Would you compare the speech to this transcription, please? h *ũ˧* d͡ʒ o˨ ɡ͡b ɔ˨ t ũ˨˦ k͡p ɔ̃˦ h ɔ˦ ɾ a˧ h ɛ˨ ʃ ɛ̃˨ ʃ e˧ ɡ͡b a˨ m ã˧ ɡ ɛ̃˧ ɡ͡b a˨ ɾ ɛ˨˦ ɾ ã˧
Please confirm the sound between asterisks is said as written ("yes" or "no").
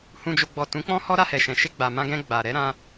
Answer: no